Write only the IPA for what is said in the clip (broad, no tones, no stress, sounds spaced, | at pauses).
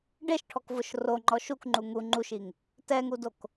ɖ e ʃ ʈʰ ɔ k v ʊ ʃ r o ŋ͡ǃ ɔ ʃ u k ŋ͡ǃ u ŋ u ŋ͡ǃ u ʃ i ŋ | t ɛ ŋ u d o k